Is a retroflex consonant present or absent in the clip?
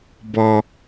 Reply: absent